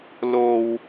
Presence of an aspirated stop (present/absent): absent